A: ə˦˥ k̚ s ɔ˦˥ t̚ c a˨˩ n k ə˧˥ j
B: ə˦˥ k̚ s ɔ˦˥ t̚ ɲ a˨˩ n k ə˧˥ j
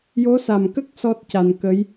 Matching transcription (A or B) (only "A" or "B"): A